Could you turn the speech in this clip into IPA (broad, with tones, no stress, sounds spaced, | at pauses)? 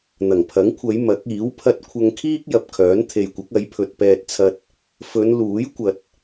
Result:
n̪ ɐ˨˩ ŋ pʰ ɐ˨˥ ŋ kʷʰ ɐ˨˧ j m ɐ˨˥ k̚ iː˨˥ w pʰ ɐ˧ t̚ kʷʰ ɐ˧ ŋ kʰ iː˥ k̚ j ɐ˨ p̚ kʰ œː˨˥ n t̪ʰ e˨ j kʷ ɐ˨˥ k̚ ɐ˨˥ j pʰ ɵ˨ t̚ p ɛː˧ t̚ t͡sʰ ɐ˧ t̚ | f ɵ˨˧ n l uː˨˥ j kʷ ɐ˨ t̚